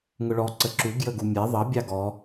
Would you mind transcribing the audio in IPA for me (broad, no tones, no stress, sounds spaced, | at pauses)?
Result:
ŋ ʊ ɭ ɔ ǀ ə ǁ u ɡ j ə ɡ u mʲ ɛ ðˤ ʌ bʲ ɑ ɡ ɔ